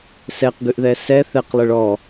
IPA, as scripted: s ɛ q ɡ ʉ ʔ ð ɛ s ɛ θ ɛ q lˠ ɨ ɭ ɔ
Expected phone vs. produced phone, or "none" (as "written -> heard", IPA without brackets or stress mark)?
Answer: none